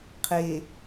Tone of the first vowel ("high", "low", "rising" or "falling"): low